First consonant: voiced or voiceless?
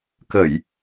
voiceless